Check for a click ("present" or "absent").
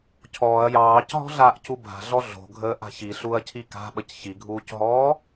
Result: absent